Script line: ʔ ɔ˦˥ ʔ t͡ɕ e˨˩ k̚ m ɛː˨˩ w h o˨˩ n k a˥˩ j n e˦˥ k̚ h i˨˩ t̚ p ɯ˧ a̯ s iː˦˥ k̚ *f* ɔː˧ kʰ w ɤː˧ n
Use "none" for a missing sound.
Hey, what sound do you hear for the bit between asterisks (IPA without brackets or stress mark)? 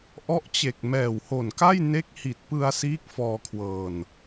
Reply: f